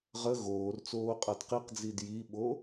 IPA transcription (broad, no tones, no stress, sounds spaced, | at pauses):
ʁ ə ɣ oː r t͡s oː qʼ a d q i q d͡z i d j i ɓ o